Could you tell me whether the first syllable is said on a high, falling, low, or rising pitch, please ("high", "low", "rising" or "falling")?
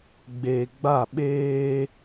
low